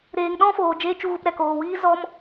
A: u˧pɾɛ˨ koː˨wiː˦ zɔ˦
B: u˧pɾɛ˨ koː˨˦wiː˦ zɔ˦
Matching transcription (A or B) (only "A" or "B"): A